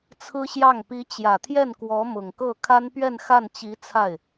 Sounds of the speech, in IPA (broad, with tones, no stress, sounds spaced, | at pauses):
t͡sʰ ɹ̩˥ ɕ j ɑ˥˩ ŋ p i˧˥ t͡ɕ j ä˨˩ t̪ʰ j ɛ˥˩ n k w ɔ˧˥ m ʊ˨˩ ŋ k ɤ˥˩ kʰ a˥ n p ɥ ɛ˥˧ n x a˥˩ n t͡ɕ i˧˥ t͡sʰ a˥˩ ɪ̯